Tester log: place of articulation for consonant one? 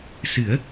alveolar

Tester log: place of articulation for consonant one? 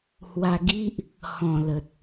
glottal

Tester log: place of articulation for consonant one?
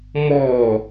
labial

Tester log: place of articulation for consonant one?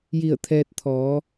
palatal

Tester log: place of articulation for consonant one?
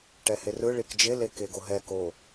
retroflex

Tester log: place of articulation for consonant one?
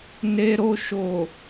alveolar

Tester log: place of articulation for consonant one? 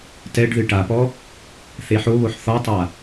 alveolar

